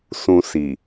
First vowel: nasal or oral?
nasal